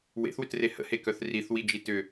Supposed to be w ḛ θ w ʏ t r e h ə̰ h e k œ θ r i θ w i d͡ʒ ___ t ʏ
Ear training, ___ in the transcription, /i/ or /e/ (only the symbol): i